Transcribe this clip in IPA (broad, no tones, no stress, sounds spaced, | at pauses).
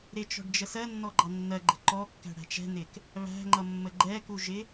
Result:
ɾ ɪ t͡ʃ ɔ̤ ɖ d͡ʒ ə s ɜ nː ɔ ɡ͡ǃ ɑ nː ɜ ɡ͡ǃ ə̤ ǃ ɔ kː æ̤ ɽ æ̤ t͡ʃ ɛ̤ n ɪ k | β æ̤ ŋ͡ǃ ʌ mː ə ɡ͡ǃ ɛ k u ʒ ɪ